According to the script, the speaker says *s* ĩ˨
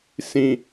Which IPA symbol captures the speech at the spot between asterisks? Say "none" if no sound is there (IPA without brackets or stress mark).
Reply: s